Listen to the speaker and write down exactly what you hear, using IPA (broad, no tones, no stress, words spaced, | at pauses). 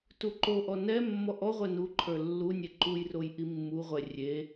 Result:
tuǃoʔɔ nɛ mːɔʔɔʁʷɛ nu ǃʰə˞lːunʲe ǃujroj ʔimːuʁʷɛ rʲe